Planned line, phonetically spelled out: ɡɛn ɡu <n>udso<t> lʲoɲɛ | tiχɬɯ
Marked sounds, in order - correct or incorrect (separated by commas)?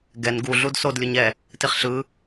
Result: incorrect, incorrect